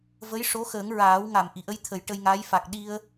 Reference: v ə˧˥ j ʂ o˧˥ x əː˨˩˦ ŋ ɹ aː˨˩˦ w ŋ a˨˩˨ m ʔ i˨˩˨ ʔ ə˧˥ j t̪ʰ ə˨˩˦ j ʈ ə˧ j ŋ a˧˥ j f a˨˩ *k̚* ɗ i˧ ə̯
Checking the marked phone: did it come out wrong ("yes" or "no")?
no